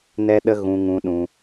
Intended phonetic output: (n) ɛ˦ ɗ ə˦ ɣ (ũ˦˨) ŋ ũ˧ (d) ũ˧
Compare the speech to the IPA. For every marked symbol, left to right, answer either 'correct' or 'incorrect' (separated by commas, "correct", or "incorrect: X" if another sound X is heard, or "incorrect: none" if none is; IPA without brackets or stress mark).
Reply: correct, incorrect: ũ˧, incorrect: ɗ